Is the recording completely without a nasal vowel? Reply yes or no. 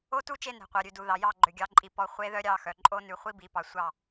yes